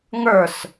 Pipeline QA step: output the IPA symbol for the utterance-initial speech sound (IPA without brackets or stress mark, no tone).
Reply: ŋ